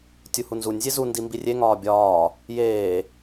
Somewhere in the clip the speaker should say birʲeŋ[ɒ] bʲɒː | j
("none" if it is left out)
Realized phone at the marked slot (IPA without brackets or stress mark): ɒː